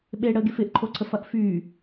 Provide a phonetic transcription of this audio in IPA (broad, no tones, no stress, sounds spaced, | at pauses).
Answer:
ɓ e ɽ ə ɡ e f ɪ ʔ ǃʰ o ǀʰ ə f ɐ ʔ f y